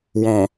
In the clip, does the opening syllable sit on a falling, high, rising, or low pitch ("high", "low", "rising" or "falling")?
low